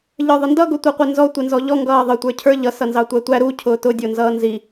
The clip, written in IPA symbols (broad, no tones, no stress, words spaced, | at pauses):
ʎə˞ðˤəndʌ ɡʊtʷiqʷinzɔ tʷɪnzɔʎɔ ŋɡʌːðˤə tʷə˞cʰə˞ ʎʌ sʌnzɑtʷætʷæ ɾu cʰʊːtʊ dʲʊːnzʌːnzi